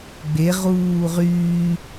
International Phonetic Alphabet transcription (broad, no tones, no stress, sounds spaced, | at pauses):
ɡ͡b e ʁ uː ʁ yː